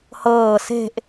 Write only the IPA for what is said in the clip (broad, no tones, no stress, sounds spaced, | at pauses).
h ɤː s e̤ ʔ